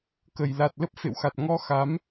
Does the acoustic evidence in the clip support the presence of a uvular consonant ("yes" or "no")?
no